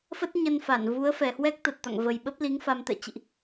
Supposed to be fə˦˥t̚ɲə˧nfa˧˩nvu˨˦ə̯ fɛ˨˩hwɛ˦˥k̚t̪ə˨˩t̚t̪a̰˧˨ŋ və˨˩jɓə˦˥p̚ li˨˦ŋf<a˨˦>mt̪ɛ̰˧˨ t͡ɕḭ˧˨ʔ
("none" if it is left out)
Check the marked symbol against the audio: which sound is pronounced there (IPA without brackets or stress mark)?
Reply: a˧